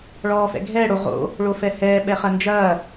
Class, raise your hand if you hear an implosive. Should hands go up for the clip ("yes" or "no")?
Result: yes